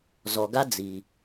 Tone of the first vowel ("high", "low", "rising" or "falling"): low